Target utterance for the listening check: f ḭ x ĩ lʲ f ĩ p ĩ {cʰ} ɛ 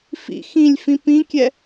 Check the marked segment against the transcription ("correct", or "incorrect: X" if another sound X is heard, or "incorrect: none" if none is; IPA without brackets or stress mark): incorrect: kʲ